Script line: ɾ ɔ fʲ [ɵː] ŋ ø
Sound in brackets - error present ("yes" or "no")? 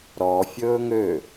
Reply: no